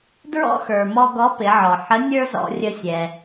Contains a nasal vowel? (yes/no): no